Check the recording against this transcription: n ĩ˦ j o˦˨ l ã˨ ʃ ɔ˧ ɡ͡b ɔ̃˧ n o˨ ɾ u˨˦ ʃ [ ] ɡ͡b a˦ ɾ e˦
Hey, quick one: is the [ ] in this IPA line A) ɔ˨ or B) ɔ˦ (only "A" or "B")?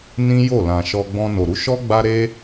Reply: B